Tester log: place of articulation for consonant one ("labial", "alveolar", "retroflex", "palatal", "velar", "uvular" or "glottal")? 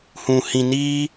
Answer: glottal